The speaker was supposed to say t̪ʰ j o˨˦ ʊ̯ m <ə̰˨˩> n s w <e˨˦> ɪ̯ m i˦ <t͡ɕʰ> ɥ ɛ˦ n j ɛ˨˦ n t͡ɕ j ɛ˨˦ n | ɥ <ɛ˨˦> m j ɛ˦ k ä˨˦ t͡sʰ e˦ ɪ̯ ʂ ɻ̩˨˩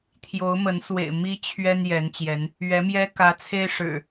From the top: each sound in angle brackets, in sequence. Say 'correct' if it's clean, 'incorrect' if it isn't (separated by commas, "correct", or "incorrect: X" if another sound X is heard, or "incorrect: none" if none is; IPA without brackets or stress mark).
incorrect: ə˨˦, incorrect: ḛ˨˩, correct, correct